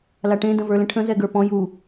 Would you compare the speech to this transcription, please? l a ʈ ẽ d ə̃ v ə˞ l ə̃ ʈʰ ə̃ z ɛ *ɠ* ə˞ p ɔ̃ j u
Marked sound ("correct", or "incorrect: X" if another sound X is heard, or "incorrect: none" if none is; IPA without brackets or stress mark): incorrect: ɡ